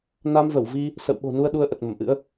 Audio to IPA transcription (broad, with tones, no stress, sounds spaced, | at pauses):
n a˧ m v ə˧˩ w v i˧ | s ə̰˧˨ w ɓ o̤˨˩ n u˧ ə̯ ɗ u˧ ə̯ ʔ ə˨˩ t̚ m ə˧˩ m ʔ ɨ̰˧˥ ə̯